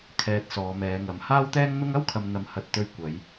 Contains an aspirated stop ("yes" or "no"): yes